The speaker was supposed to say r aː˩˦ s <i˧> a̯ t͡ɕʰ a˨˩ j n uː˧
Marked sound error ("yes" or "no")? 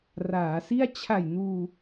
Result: yes